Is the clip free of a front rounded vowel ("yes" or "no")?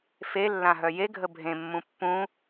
no